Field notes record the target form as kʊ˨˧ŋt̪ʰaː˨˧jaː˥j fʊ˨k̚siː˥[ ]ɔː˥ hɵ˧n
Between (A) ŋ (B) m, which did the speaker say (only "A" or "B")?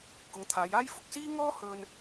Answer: A